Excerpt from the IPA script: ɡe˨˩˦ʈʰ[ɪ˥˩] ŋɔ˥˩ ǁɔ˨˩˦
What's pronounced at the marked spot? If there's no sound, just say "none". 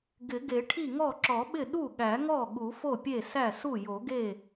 i˥˩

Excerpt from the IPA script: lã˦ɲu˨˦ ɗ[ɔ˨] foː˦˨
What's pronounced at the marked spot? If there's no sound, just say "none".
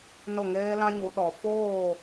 ɔ˨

